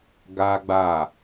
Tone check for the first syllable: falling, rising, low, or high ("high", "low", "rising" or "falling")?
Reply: high